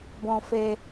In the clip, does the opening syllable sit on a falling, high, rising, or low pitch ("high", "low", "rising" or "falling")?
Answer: high